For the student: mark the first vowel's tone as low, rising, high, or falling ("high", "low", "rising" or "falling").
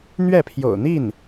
falling